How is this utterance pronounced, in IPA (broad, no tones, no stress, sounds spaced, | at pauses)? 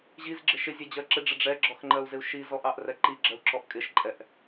ʑ i z ɡ͡ǁ ɪ ʃ ɪ zʲ ɛ d͡ʑ ɜ ǁ ɪ ɖ͡ʐ ɪ ɖ͡ʐ ɛ ɡ͡ǁ ɔ x ŋ͡ǃ ɜ u̯ z ɪ u̯ ʃ i z ɔ ʔ ɑ ʔ r ɛ ǃ i ɡ͡ǁ ɜ u̯ ǁ ɔ ʔ kʼ ɪ ʃ ǃʼ ɛ ʔ